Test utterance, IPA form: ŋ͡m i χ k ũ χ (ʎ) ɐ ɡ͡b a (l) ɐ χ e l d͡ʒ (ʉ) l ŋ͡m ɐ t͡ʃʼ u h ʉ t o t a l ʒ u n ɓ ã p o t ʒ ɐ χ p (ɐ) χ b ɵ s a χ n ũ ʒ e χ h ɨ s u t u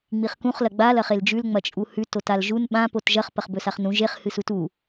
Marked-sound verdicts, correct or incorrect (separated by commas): incorrect, correct, correct, correct